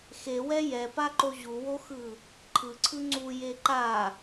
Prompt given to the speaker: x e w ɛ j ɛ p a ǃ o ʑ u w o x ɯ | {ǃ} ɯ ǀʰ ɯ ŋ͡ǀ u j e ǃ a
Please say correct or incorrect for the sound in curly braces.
incorrect